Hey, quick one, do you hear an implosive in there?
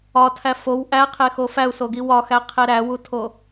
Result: no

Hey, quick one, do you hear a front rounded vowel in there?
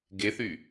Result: yes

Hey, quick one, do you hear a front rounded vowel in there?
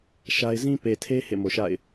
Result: no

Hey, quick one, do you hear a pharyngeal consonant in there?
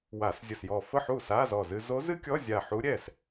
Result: yes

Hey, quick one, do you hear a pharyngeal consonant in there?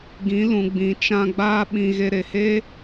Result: no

